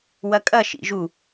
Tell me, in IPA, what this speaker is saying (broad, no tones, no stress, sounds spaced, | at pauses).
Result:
w ɐ kʼ ɐ ʃ ḭ ʒ u